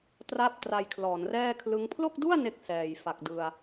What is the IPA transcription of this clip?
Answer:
tra˥˩p̚tra˧jkʰlɔː˩˦n rɛː˥˩kʰlɯ˦˥ŋ pʰlo˥˩k̚du˥˩a̯ ne˥˩k̚ sɛː˨˩jfa˨˩k̚ dɯ˧a̯

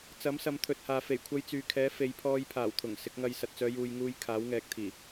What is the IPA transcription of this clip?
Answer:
t͡sɐ˨˥msɐ˨˧m t̪ʰɵ˨t̚haː˨ fe˨˩j kʷʰɐ˧jt͡syː˨kʰɛː˨˥ fe˨˧jpʰɔː˧j pʰaː˨˩wt̪ʰʊ˨˩ŋ sɪ˨˥k̚ŋɐ˧j sɐ˨t̚t͡sœː˨˧ juː˨jŋuː˨j kʰaː˨˥wŋɛː˨˥k̚t̪ʰiː˨˩

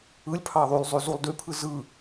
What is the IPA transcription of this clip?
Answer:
ɯlʲ pʰɑðˤylˠ zˤyzulˠdypʰɯ zɯ

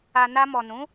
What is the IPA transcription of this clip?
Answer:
a˨ na˧mɔ˨nũ˨˦

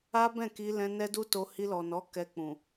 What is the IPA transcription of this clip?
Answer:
a˦bɛ̃˦˨ki˧lɛ̃˧ nɛ˦du˦to˧ hi˧lɔ˨nɔ˨˦ kɛ˧k͡pũ˨

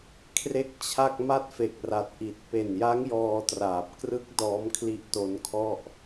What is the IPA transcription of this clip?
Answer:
kʰre˥˩k̚t͡ɕʰa˥˩k̚ ma˦˥t̚fe˨˩k̚ra˨˩t̚ ʔi˨˩t̚ pe˨˩nja˦˥ŋ jɔː˧traː˨˩p̚krɯ˦˥k̚ dɔː˦˥mkʰli˦˥ʔ to˦˥nkʰɔ˥˩ʔ

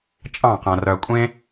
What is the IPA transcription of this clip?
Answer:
t͡ʃʼɑ̃ː˦˨qã˨ rœ˨kʷʼẽ˧

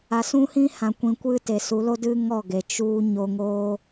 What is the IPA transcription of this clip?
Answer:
a˨sũ˦hĩ˦hã˨ kʷĩ˨ kʷɨ˦˨te˨su˨˦lo˦ dɨ˦ŋɔ˦˨ɡe˨ t͡ʃu˧ ɲo˧ ŋoː˦

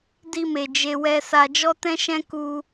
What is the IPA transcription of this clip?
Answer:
di˧me˨ d͡ʒe˧wɛ˧ sa˨d͡ʒɔ˧tɛ̃˧ʃɛ̃˧ ku˧

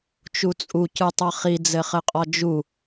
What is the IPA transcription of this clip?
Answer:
t͡ʃut͡sʼu cɯtˤʌχi d͡zɘχɘqʼɒd͡ʒu

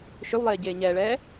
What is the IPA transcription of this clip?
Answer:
ʃʏwlˠeːɟeː ɲɛːɭɛː

